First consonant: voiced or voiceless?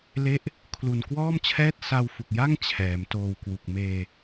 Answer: voiced